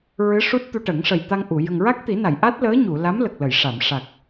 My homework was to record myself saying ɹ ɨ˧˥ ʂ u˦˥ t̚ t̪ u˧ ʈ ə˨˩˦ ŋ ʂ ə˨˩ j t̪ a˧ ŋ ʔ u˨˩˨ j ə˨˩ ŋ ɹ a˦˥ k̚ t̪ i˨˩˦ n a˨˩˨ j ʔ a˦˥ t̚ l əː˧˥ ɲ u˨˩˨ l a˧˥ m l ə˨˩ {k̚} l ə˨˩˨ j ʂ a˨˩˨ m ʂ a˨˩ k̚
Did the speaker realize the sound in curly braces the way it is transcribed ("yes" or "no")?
yes